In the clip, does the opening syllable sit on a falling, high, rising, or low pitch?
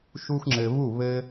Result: high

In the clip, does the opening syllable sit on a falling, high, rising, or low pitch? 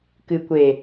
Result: low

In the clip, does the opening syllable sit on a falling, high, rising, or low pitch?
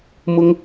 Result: high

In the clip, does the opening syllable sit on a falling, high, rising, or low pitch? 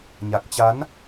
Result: low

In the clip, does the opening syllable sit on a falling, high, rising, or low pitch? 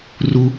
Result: high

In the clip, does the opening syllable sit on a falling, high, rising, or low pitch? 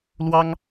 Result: high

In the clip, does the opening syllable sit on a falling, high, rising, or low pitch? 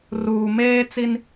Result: low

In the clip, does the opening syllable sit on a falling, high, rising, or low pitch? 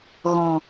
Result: low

